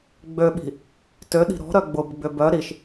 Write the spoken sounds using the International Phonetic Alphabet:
ɡ͡b ø ɓ i̤ | t ø ɗ i̤ ɾ ɔ̤ ɾ œ ɡ͡b ʊ b ɡ͡b ʏ b œ ɾ i ʃ

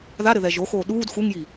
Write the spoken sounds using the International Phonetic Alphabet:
ð a ɾ ɘ ð ɛ ʒ o x oː ɗ uː d x u ŋ j i

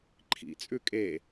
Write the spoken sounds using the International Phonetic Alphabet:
ǃʰ ḭ t͡sʼ ʉ kʼ e

